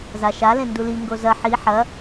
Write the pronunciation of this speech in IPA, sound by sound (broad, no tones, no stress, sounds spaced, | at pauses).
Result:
z a ʃ a l ẽ n d u l i ŋ ɡ o z ɐ ħ i ħ ɐ